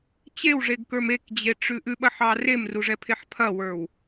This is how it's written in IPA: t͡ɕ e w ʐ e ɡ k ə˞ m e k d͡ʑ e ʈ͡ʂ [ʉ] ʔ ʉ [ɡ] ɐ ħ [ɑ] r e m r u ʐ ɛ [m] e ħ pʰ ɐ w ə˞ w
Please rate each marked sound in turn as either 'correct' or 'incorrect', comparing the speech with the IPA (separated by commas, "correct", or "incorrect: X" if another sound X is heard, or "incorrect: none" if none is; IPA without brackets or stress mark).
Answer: correct, incorrect: ɓ, correct, incorrect: pʰ